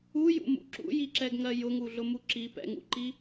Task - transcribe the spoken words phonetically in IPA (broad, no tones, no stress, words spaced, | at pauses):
ujṵmṵ ǁṵjiǁɛɡŋɜ jʊŋuɮʊmu ǁi pɛ̰ŋṵǃi